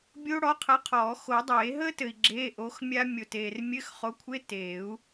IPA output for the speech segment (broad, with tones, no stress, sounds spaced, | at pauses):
bʲ o˦˥ ɽ ɔ˨˥ qʰ ə˨˥ qʰ ɔː˨˩˦ x o˨˩˦ dˤ eː˨˩˦ ɦ əː˦˥ t ɘ˨ i̯ ɡ͡ǁ eː˧˥˧ ʔ o˨˥ x mʲ a˦˥ mʲ o˨ t eː˨ r mʲ ɘ˧˥˧ x χ o˨˥ kʷʰ e˧˥˧ t eː˨˩˦ u̯